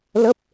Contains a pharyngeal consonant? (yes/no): no